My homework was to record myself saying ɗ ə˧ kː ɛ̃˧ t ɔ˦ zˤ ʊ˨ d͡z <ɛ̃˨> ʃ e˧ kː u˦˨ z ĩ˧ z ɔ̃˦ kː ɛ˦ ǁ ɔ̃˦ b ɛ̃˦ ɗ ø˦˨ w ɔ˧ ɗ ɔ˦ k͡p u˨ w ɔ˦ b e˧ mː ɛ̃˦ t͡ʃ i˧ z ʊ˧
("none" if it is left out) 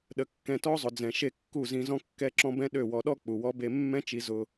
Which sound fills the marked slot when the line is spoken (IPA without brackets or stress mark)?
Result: ɛ̃˨